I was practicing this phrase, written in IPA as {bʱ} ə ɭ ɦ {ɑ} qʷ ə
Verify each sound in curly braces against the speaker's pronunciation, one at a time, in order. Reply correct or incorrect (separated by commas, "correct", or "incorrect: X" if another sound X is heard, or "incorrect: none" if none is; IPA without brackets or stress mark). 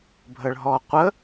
correct, incorrect: ɔ